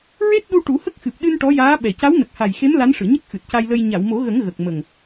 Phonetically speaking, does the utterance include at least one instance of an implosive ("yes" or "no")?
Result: yes